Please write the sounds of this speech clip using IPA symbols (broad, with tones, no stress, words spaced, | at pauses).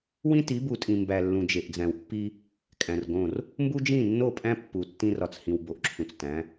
wĩ˦ti˨˦bu˨tʼĩ˨ mbæ˨ lːũ˨d͡ʒe˨ʔd͡zæ̃˨wpːi˦ | kʼæ̃˨rɡõ˦˨r | mbu˦d͡ʒĩ˦˨nːo˦˨pʼæ̃˦ pːu˨ tːĩ˦rɒ˨t͡shĩ˨w bo˨ʔǁʰũ˨t͡s tæ̃˨˦